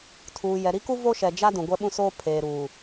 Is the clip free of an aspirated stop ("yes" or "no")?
no